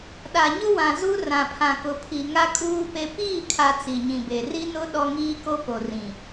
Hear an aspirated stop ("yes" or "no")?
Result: yes